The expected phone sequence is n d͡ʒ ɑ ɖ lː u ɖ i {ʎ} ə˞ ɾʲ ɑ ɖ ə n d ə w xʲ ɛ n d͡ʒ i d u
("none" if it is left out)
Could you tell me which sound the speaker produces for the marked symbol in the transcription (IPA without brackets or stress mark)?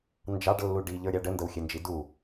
ʎ